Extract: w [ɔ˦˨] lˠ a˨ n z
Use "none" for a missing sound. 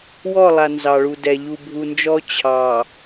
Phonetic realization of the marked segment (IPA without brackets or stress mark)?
ɔ˦˨